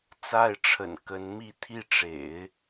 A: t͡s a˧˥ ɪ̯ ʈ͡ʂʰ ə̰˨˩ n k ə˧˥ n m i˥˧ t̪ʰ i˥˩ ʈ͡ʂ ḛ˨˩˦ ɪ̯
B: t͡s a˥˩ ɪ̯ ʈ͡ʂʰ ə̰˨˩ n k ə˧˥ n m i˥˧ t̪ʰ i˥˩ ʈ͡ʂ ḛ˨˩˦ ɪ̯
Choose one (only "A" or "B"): B